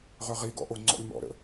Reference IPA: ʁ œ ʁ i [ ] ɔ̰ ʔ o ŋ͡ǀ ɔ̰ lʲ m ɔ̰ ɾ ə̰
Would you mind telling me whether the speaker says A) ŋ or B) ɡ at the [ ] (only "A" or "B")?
B